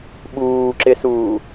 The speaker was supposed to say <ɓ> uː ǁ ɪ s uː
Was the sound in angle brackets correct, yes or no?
yes